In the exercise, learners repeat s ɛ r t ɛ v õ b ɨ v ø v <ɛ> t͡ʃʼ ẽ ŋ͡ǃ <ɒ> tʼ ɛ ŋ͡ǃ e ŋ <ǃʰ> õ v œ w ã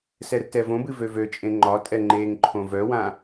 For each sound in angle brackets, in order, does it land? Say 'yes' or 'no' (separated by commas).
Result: no, yes, yes